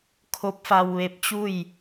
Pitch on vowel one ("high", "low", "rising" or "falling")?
rising